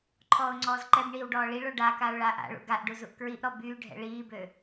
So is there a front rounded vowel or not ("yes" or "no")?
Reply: yes